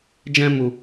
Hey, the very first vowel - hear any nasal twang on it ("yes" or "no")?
yes